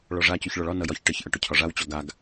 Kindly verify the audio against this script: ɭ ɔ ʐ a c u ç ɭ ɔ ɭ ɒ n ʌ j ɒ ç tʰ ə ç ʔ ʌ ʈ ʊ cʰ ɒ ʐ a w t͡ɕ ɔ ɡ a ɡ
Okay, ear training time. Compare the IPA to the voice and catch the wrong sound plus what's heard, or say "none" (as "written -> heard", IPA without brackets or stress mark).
tʰ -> ʈ